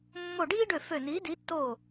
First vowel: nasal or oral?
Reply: oral